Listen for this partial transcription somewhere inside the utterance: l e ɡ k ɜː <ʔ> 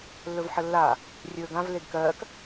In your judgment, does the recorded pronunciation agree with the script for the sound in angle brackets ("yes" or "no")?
no